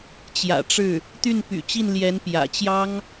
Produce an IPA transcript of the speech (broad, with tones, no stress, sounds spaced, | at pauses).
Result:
t͡ɕ j ä̰˨˩ ʈ͡ʂ ɻ̩˥˩ | t̪ y˥˩ n p y̰˨˩ t͡ɕ i˥˩ n l j ɛ˧˥ n p j ä̰˨˩ t͡ɕ j ɑ˥ ŋ